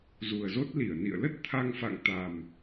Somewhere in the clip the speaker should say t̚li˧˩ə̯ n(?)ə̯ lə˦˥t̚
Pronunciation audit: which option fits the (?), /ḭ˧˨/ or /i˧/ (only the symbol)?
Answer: ḭ˧˨